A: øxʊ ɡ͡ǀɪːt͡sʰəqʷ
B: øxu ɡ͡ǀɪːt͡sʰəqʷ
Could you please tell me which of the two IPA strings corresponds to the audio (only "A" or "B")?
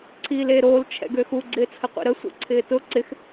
B